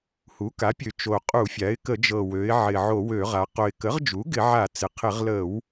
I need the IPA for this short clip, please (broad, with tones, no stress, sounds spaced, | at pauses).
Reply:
h u˩˥ k a˩˥ pʲ ø˨˩ t͡ʃ o˨˩ qʼ u˧˩˧ fʲ a˩˥ ɪ̯ k ə˧˩˧ d͡ʒ ɤ˨˩ w ø˩˧ ɪ̯ ʕ ɪ˨˩ ʕ o˧˩˧ w ø˧˩˧ ʁ a˩˧ q o˨˩ ɪ̯ k ə˩˥ ʁ d͡ʒ u˩˥ ɡ ɪ˧˩˧ ʕ a˧˩˧ t͡s ɪ˩˧ qʰ ɪ˧˩˧ ʁ l ə˧˩˧ w